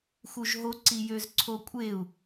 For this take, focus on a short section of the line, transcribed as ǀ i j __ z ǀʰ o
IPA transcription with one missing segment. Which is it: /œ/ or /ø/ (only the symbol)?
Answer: ø